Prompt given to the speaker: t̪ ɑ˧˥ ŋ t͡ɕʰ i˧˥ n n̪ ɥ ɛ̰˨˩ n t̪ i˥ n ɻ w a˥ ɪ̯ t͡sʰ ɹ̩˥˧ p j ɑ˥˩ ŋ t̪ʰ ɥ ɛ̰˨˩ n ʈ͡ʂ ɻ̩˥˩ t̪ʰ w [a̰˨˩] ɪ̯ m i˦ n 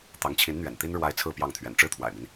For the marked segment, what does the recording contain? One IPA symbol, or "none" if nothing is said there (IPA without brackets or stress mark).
a̰˨˩